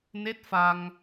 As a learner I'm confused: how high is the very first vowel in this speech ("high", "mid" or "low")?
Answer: mid